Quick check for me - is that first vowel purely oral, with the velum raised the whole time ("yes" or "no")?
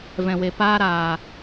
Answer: no